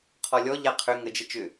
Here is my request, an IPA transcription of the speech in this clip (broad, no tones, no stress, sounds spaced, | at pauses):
qʰ ɔ lʲ ɔ ʎ a qʰ ʏ ŋ ə d͡ʒ ə t͡ʃ ʏ